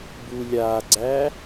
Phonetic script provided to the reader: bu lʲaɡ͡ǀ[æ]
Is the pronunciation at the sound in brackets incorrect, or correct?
correct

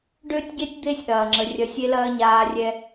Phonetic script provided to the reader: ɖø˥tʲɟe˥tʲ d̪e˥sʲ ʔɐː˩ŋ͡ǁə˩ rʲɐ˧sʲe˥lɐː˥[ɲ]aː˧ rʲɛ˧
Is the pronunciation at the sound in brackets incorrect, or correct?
correct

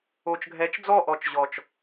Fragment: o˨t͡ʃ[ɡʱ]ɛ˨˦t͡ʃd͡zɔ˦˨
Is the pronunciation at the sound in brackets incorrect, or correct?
correct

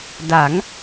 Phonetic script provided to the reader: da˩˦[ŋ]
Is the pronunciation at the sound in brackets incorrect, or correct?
correct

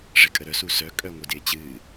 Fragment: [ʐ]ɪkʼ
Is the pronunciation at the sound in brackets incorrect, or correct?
correct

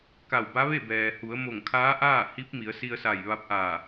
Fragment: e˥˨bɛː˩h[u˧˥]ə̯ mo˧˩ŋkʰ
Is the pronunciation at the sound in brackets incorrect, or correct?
incorrect: u˩˧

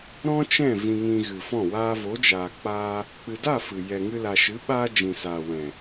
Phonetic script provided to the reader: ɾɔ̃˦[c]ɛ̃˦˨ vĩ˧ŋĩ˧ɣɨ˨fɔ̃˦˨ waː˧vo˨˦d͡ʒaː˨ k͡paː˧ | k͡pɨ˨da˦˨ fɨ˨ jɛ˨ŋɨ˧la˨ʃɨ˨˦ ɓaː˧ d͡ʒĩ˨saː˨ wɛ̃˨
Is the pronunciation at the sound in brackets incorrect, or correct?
incorrect: t͡ʃ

